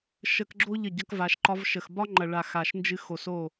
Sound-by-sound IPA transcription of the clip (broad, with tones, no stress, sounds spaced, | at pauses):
ʃ ə˧ k ɡ͡ǁ o˦ ʎ ə˦˨ ɟ ʌ˦ k v a˧ ʃ ǃ ɒ˧ v ʃ ə˨ x b ɒ˦ ŋ͡ǃ ɐ˨ ɭ a˨ x a˨ ʃ n d͡ʒ ɨ˧ x o˨ s o˦˨